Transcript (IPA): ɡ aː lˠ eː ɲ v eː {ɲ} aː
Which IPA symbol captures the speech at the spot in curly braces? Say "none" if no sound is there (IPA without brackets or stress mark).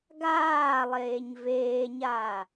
ɲ